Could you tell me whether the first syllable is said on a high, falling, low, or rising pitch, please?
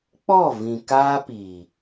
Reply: falling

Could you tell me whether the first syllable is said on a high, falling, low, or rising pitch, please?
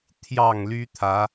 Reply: low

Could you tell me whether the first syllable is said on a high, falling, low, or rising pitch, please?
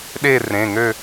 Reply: falling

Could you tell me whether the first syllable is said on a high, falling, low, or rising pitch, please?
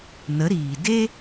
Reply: rising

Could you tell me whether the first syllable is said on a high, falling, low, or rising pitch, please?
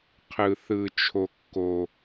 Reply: high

